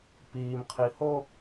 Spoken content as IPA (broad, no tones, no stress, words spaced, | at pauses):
piːmqʰi ho